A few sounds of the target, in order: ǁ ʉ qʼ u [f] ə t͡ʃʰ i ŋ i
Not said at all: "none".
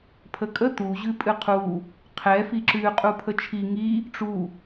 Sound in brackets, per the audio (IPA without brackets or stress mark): pʰ